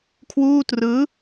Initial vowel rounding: rounded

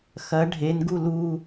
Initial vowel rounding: unrounded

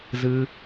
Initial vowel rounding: unrounded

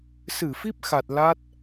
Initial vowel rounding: unrounded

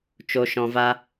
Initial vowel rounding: rounded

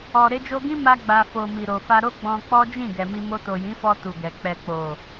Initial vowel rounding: rounded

